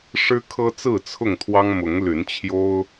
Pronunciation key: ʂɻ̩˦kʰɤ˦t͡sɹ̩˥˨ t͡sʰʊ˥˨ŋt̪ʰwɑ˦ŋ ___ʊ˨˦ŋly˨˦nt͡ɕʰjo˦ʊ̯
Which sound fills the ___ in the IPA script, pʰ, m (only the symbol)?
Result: m